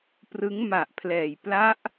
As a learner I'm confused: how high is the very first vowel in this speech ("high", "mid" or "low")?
high